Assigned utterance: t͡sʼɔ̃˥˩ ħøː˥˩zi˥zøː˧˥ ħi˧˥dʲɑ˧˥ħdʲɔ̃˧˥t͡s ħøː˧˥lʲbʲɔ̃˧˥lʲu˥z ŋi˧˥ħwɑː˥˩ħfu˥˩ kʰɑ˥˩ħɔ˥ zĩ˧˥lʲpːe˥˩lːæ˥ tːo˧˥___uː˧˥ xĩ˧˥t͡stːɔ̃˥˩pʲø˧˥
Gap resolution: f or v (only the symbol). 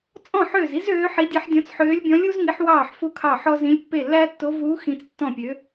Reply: v